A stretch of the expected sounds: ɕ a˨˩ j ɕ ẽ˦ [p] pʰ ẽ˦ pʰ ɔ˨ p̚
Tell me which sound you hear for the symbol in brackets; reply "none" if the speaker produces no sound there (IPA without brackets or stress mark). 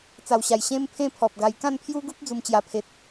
m